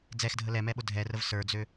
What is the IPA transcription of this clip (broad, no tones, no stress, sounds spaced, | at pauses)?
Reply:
d͡z ɛ x dʱ ə l ɛ m ɛ ɓ ʊ dʱ ɛ r ə v s ə˞ d͡z ø